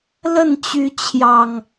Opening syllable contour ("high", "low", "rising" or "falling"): falling